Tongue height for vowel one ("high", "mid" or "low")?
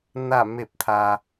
low